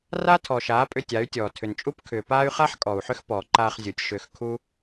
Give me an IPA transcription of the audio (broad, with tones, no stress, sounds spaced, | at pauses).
r a˦ tʰ ɔ˨ ʃ aː˨˦ pʼ ʏ˧ tʲ a˨˦ y̯ tʲ ɔː˨ tʰ ʏ˨ n t͡ʃʼ u˦ p kʰ ʏː˨ p aː˦ y̯ χ a˦ ħ kʼ ɔ˨ u̯ ħ ʏ˦ x p ɔː˨ ǃ aː˧ χ zʲ u˨ tʲ ʃ ʏː˧ x kʰ u˦